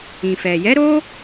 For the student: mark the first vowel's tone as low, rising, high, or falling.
low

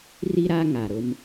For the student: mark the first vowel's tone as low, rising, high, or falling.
high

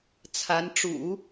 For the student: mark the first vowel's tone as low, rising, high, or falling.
rising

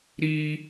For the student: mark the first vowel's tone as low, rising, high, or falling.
high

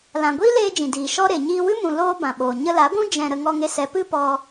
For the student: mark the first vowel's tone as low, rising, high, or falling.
low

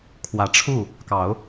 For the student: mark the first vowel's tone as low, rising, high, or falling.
rising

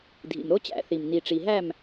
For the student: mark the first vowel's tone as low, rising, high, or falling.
low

